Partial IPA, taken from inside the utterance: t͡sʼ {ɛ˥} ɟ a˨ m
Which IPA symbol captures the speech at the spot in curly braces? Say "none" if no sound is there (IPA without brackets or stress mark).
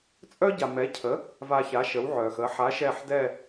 œ˥